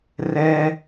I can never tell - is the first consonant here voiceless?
no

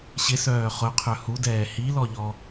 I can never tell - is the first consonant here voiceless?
yes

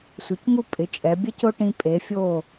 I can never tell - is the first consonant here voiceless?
yes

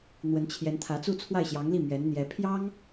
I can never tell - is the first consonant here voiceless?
no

